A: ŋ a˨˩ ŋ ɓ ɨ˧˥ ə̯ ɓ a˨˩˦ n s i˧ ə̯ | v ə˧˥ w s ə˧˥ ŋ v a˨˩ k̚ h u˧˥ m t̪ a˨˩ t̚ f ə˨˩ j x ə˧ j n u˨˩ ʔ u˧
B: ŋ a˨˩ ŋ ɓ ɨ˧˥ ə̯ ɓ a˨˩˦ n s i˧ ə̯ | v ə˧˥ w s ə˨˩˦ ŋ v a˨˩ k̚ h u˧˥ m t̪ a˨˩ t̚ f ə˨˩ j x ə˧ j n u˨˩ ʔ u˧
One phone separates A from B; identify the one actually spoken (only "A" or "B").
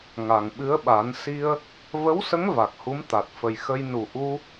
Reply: A